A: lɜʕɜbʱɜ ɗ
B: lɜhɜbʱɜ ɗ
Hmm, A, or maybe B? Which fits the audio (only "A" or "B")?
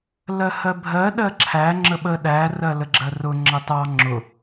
B